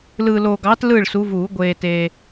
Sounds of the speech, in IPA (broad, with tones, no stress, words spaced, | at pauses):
lɯː˨loː˨ɡɑː˨˦t lɯː˥˨ɭsu˨˦vuː˨˩˦ ɡʷeː˨ teː˨